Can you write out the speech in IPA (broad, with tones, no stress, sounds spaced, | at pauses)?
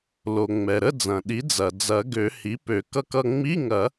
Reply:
l o˩ ŋ͡m ɛ˩ ɾ ə˧˥˧ d͡z ɐ̃˩ ɗ i˩˥ d͡z ɐ˩ d͡z ɐ˨˩˦ ɡ ø˨˩˦ h i˩˥ p ø˨˩˦ k ʌ˧ k ʌ˧ ŋ͡m i˧˥˧ ŋ ɐ˨˩˦